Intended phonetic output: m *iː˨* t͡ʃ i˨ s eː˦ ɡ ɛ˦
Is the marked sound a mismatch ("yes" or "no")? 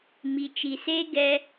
yes